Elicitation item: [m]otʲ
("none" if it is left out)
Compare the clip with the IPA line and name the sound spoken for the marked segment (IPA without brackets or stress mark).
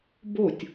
b